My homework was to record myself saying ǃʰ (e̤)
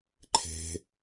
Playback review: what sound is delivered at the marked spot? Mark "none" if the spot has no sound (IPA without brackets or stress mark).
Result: e̤